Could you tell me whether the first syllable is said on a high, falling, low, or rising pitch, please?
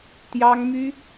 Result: high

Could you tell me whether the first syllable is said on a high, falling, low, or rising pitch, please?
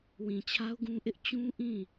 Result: low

